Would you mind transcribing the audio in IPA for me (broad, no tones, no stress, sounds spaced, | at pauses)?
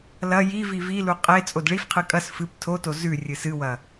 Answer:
l ɐ j i v i v i l u qʼ e t͡sʼ o d ɭ i f qʰ ɨ kʼ ɐ s f ɨ p tʰ o t o z ʉ rʲ ɨ s ɨ w ɐ